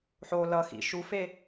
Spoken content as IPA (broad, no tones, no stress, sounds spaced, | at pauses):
ħ o l ʌ x ḭ ʃ u f e